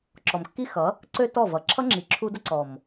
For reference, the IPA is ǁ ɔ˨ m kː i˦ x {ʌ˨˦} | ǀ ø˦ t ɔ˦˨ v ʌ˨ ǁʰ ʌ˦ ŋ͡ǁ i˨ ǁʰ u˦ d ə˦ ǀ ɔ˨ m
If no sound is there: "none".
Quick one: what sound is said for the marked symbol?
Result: ʌ˨˦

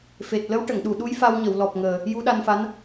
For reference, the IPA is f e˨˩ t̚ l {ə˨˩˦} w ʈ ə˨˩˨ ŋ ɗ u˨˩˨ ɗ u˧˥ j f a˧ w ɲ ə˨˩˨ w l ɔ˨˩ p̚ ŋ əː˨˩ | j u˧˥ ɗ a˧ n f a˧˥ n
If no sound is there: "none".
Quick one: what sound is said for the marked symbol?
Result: ə˧˥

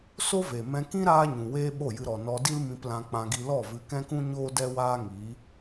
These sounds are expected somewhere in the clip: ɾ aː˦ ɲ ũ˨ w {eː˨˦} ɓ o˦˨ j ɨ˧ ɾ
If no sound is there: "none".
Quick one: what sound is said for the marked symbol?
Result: eː˦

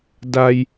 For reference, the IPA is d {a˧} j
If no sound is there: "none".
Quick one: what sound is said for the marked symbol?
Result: a˧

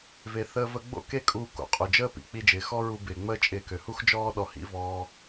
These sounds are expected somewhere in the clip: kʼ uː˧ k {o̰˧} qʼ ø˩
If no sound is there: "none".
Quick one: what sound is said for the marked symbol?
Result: o̰˩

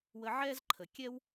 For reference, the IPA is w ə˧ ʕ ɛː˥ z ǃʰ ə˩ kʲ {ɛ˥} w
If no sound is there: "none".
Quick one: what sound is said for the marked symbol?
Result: ɛ˥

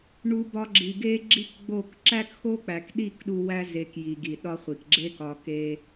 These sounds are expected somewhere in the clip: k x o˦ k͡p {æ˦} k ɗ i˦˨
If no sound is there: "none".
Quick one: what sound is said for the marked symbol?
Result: æ˨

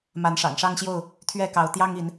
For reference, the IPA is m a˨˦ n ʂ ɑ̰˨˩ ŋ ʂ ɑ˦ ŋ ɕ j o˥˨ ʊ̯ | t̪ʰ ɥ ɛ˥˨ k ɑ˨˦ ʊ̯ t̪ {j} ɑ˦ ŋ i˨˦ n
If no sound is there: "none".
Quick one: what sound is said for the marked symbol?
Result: j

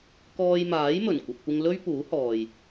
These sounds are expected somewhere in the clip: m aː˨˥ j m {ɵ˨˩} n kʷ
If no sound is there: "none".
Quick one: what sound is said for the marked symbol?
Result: ɵ˨˩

